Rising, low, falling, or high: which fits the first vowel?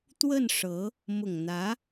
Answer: falling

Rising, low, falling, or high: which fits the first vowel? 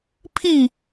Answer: falling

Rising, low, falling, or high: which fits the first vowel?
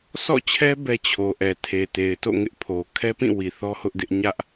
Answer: falling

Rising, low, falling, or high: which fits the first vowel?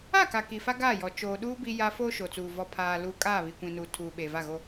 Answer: falling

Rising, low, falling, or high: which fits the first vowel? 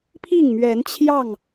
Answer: falling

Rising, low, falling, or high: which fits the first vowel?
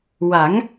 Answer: rising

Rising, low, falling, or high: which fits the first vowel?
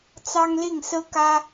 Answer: high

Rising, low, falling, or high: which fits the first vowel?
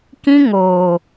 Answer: high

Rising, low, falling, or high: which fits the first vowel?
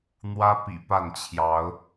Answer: high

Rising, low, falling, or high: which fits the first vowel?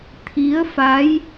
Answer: rising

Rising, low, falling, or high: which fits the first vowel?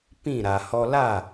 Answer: falling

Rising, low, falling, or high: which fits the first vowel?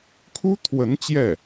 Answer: high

